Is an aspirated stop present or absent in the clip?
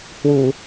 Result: absent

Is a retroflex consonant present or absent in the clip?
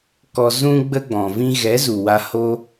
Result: absent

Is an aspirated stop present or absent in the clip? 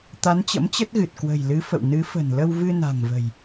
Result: absent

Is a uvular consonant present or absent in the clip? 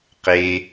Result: present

